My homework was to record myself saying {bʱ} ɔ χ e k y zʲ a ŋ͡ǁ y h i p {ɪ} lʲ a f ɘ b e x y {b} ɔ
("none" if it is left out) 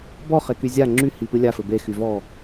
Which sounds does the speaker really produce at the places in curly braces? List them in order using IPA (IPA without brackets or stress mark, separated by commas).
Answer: b, ɨ, v